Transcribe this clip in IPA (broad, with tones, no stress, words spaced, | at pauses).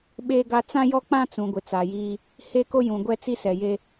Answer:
ɓe˦ɡa˦ t͡sã˦jɔ˦k͡pã˦t͡sũ˨ ɡʷɪ˨t͡sa˨jiː˦ | he˦ko˦jũ˨ ɡʷɛ˦t͡si˦sɛ˨je˦